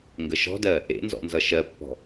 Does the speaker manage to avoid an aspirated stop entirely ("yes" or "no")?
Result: yes